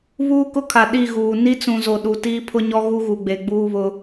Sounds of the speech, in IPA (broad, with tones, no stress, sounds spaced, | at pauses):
β uː˦ k ʊ˦ kʰ a˨ ɗ i˦˨ ɣ uː˨ n i˦ t͡s ũ˨ z o˨ ɗ u˨ t iː˦ pʰ ʊ˦ ɲ ɔ˦ ɣ u˦ ɣ u˨ ɡ͡b e˨ ɡ͡b uː˦ β ʊ˦